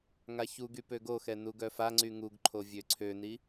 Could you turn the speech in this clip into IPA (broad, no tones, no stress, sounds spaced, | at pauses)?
ŋ a ç u ɡ y p ø ɡ o x ɛ n u ɡ œ f a ŋ͡ǀ y ŋ u ɡ ǃʰ o vʲ ø ǀʰ ø n i